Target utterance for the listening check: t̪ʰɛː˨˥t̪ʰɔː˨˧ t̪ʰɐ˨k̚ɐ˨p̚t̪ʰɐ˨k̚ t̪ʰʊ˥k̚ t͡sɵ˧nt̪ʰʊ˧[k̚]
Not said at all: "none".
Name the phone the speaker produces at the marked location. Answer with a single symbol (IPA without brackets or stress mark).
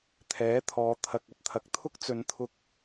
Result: k̚